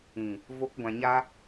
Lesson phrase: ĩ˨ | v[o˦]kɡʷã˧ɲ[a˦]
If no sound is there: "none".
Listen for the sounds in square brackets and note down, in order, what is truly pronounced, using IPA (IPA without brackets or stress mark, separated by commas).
o˦, a˦